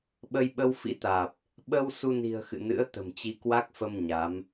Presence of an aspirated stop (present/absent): absent